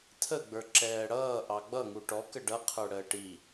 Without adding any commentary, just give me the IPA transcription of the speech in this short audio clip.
tʰ ə ɡ͡b ə˞ ǁ ɛː ɽ ʌː ʔ ɑ ɡ͡b ʌ ŋ u ʈ ɔ k ə ɖ ʌ qʰ ə˞ ɽ əː ʈ i

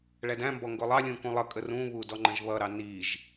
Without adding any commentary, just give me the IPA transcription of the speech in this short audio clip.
ɭ æ d æ̃ m b ɔ ŋ ɡ ʊ lˠ ɑ lʲ ũ k ũ lˠ ʌ kʼ ə r ũ β u d ɔ ŋ͡ǃ ə̃ ʒ β ʌ ɾ ɑ n i ʒ

